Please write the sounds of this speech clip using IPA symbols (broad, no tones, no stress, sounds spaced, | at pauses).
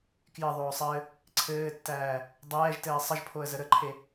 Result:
k j ɘ ðˤ oː sˤ ɘː | ǀʰ ɘː tː æː | dˤ ɛː ʒ t ɘː sˤ ə ʒ pʰ o ə̯ z ə ɾ ə ǃʰ e